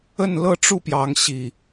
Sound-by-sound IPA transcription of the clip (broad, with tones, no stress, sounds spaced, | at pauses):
ə˥˨ n l ɤ˥˨ ʈ͡ʂ u˥˨ p j ɑ˨˦ ŋ ɕ i˨˩